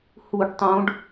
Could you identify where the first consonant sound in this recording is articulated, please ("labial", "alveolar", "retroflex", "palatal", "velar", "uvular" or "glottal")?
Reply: glottal